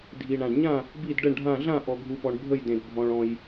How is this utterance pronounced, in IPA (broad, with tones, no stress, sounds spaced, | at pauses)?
dʱ i˨ ɳ ã˨ ɖ ɲ ã˥˨ | b i˥˨ d ɖ ə˥˨ ɳ ɖʱ ã˥˨ ɮ ã˥˨ ʔ ɔ˨ ɡʱ u˨ p ɔ˨ ɳ bʱ ə˥˨ j d ẽ˨ d bʱ ɔ̃˨ ɭ ɔ̃˨ j